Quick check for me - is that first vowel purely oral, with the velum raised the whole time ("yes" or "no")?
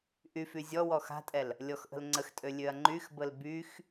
yes